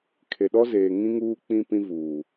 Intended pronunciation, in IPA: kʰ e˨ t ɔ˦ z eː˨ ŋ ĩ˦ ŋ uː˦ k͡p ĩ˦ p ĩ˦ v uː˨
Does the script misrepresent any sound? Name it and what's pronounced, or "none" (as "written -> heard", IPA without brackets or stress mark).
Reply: t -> ɗ